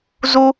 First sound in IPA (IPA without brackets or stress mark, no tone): z